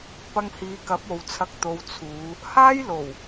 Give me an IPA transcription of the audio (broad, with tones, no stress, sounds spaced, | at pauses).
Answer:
p ɐ˧ ŋ h iː˨˧ k ɐ˨˥ p̚ o˨ w t͡sʰ ɐ˧ k̚ t̪ o˨˧ w t͡sʰ uː˨˧ | h aː˥ j l o˨˩ w